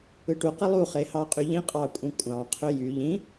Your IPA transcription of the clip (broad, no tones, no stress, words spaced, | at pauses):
ɯʈu qilˠu χehɑqʼyʎĩ qʼɑkʷʼĩkʷʼɑ̃ qʰøjy ʎĩ